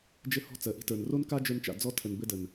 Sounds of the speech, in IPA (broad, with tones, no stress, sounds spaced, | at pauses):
d͡ʒ ɘ˦ h ɔ̤˦ t͡s ɜ˨ ʔ i̤˦ t ə˞˨ n r o˦ n k a˦ d͡ʒ ə˞˧ n t͡ʃ a̰˨ d͡z ɔ˦ tʰ ə˨ n b ɘ˦ d ə˨ n